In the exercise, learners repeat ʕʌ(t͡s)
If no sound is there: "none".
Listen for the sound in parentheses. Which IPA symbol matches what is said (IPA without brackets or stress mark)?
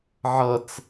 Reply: t͡s